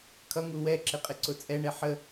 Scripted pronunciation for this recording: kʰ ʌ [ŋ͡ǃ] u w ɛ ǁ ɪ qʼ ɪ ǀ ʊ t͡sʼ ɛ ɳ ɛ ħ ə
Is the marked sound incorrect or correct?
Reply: incorrect